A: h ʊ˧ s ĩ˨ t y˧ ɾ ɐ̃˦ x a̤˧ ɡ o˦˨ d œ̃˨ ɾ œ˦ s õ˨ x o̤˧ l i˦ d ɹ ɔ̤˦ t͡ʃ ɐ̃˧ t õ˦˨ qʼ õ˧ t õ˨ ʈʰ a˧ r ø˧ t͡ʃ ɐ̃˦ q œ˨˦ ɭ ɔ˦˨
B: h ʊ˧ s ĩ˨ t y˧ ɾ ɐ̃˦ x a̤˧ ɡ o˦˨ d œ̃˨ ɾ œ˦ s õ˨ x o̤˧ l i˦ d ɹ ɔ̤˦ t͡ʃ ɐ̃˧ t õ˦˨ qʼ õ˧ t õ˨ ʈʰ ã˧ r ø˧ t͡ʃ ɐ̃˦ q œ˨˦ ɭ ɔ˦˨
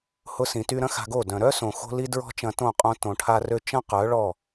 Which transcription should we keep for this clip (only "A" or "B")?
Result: A